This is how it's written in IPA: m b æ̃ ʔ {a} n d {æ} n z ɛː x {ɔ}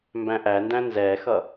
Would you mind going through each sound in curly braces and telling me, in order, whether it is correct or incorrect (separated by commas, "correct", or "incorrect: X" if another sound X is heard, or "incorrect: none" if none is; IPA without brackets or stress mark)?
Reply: incorrect: æ, incorrect: æ̃, incorrect: ʌ